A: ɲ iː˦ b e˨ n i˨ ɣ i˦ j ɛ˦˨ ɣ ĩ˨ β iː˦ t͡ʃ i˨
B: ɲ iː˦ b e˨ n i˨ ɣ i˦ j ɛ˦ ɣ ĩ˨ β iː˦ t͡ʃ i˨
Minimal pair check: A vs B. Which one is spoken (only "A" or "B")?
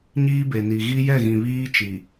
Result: A